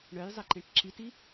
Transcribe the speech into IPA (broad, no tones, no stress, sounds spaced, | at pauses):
ɳ œ j zˤ e ǃ ẽ ʈ ǁ i t i